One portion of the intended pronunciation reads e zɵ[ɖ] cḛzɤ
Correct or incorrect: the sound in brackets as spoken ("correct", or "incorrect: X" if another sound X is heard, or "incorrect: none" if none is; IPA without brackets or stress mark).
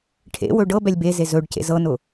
correct